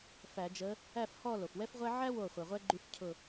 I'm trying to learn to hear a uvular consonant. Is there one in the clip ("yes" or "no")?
yes